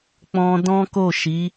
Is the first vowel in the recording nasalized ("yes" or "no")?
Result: yes